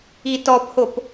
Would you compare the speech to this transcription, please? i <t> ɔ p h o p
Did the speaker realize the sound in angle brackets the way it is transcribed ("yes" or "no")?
yes